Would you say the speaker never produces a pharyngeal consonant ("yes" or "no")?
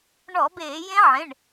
no